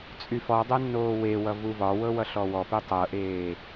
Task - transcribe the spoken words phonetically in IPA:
t͡sʼyfɔdˤɛ nːoːwewʌ vuvɒwɤ wʌɬɔwɔpe tˤɤʔeː

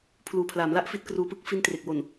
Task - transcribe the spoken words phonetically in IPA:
pʰluː˨˩pʰlaː˩˦mla˦˥ʔ fi˦˥t̚kruː˧pɯ˦˥k̚ fi˦˥ntre˨˩k̚wo˨˩n

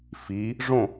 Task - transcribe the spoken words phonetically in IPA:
fi | ʐõ

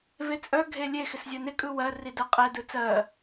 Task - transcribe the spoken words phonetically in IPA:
vet͡sʼœ ɡʱelʲe xɪszʲɜnɪ kʼɯwɜ ridɜqʼɛ dɯt͡sɜ

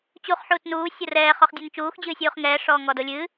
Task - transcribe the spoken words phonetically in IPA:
t͡ɕuχ ħuːtnuː sʲorɛː χɔχdʲɛnt͡ʃuːx d͡ʑɨːsʲuːχŋɛː ʂɔːŋɔdolʲɨ

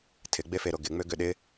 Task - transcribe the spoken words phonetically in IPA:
tʰɪɡ͡befeɾo ɡɪŋ͡møɡʏ ɗɪ

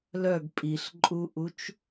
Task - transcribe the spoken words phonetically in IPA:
lœɡ pʼiɬǃʼuʔut͡ʃ

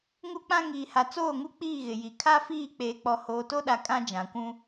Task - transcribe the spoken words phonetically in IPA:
ŋu˦k͡pã˦ ŋiː˨ha˨ t͡soː˦˨ŋu˦ k͡piː˦˨ɣɪ˨ji˨ kʰa˦fiː˦˨ k͡peː˨k͡pɔ˨ hoː˨to˦ɗa˨ kʼã˦d͡ʒã˨kʷũ˦

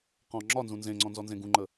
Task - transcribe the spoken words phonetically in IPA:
qɔ̃ ŋ͡ǁɒnzũ nzẽŋ͡ǀɔ̃nzɔnzẽ ɡũŋ͡ǃə

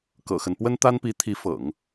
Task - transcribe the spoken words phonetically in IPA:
kɤ̰˨˩xə˦n pwə˥nt̪a˥npi˧˥t̪ʰi˧˥ fɤ̰˨˩˦ŋ

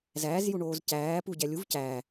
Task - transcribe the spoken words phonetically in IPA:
zæːzjuɳoːz cæː puɟæ lʲuv cæː

